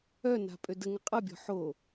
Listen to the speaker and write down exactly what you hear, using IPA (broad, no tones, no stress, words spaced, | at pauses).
œna̤ pʼødəŋə qʼɐbʲɔ̤ ħo